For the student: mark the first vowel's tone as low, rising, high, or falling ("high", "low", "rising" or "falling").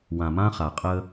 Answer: low